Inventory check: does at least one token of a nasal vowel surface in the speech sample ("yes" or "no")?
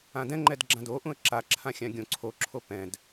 yes